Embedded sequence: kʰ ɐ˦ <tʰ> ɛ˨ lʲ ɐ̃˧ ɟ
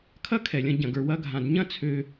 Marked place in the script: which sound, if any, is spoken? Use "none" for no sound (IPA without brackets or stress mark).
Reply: kʰ